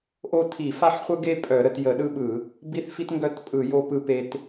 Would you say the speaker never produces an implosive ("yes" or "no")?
no